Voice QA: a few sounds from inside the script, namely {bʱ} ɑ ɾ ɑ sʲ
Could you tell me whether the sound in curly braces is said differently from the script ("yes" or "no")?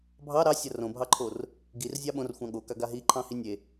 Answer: no